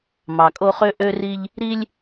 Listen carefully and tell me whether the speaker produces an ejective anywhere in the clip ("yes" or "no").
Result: yes